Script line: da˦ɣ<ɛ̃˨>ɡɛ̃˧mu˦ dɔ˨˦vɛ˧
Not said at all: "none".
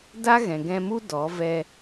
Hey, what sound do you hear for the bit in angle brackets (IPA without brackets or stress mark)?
ɛ̃˨